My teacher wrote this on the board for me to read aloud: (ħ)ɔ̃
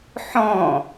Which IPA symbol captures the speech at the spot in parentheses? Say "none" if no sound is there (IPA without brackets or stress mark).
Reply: ħ